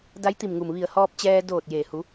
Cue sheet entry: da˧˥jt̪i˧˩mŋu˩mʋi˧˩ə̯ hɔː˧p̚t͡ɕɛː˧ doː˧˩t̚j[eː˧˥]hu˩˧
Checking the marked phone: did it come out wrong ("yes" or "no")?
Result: yes